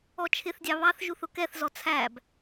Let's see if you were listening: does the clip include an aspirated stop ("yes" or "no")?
yes